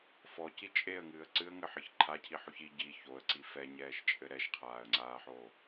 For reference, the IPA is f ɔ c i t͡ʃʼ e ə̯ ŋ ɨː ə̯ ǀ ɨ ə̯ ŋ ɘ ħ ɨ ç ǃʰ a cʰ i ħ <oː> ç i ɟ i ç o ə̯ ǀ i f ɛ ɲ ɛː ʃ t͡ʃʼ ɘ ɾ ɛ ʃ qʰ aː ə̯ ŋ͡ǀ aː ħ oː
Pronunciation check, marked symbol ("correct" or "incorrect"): incorrect